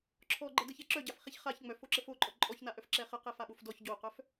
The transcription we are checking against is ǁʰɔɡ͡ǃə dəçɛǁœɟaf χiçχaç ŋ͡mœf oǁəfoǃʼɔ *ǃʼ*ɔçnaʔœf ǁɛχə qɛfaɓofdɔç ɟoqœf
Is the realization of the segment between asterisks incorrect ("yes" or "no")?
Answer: no